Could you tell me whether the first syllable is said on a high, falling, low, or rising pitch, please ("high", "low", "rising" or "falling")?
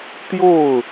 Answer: falling